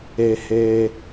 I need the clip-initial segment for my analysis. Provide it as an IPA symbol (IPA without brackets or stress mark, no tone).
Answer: e